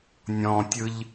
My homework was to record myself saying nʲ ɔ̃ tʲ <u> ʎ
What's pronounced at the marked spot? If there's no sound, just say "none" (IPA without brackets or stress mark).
ɯ